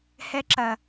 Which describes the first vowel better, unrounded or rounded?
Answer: unrounded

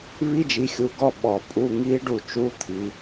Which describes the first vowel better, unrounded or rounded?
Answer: unrounded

